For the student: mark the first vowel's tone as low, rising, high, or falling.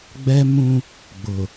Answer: high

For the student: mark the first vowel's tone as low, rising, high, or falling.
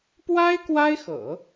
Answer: high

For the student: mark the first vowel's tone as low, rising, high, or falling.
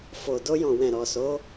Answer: low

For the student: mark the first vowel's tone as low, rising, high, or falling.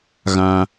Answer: high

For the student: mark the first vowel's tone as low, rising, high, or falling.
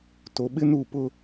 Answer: low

